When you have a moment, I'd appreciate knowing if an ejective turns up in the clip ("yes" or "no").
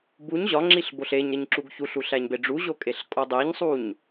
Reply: yes